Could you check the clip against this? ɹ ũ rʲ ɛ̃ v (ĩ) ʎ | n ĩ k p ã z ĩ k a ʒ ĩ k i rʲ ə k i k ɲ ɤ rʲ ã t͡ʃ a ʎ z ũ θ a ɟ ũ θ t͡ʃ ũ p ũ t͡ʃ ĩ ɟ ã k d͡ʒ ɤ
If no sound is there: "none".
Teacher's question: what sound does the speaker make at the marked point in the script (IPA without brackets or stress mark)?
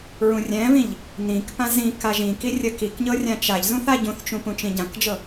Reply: ĩ